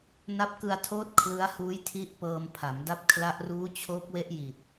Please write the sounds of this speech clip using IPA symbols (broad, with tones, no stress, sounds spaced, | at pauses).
n a˦˥ p̚ k ɯ˧ a̯ tʰ oː˦˥ t̚ kʰ l ɯ˦˥ a̯ h uː˦˥ j tʰ i˦˥ ʔ p ɤː˧ m pʰ a˩˦ m d a˦˥ p̚ kʰ l a˦˥ ʔ r uː˦˥ t͡ɕʰ oː˦˥ k̚ w e˦˥ ʔ j i˨˩ t̚